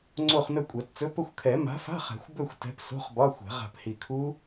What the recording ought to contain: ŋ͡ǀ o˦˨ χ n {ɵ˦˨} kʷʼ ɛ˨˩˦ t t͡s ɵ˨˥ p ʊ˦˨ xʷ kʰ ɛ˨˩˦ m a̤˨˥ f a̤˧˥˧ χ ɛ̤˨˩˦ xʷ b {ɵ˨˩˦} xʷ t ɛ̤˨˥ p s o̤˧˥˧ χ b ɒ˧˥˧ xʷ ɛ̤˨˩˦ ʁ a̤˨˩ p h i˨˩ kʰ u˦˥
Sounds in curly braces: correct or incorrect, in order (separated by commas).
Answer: correct, incorrect